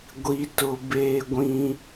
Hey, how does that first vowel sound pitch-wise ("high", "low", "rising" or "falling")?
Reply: high